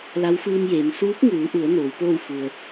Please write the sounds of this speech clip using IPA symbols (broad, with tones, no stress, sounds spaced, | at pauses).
l a˧˥ w f ɯː˧ m j eː˩˧ m s uː˧˥ p̚ ŋ uː˩˧ ʔ u˩˧ ə̯ n oː˩˧ w p oː˥˨ w f u˩ ə̯